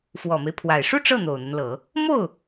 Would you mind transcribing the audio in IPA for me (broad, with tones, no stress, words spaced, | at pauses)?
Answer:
fwɔ˨˩me˦ɪ̯pʰwa˨˩ɪ̯ ʂu˥˧ ʈ͡ʂɤ˥˩ n̪o˨˩ʊ̯n̪ə˦nlɤ˨˩˦ | mo˥˩ʊ̯